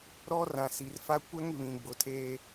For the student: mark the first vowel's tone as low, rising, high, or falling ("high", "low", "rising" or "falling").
high